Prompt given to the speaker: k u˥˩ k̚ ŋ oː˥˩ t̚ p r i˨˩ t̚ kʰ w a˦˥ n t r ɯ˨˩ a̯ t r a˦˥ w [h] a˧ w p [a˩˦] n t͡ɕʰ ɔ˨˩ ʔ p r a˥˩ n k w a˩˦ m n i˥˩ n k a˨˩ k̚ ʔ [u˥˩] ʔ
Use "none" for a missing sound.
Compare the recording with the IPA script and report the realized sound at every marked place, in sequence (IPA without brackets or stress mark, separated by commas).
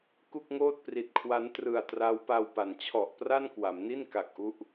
p, a˩˦, u˦˥